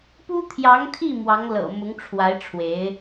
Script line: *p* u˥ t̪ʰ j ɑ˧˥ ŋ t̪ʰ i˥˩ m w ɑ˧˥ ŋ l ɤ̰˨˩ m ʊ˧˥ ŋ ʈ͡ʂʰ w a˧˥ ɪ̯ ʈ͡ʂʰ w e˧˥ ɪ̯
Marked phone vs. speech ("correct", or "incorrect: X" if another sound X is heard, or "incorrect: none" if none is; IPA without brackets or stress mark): correct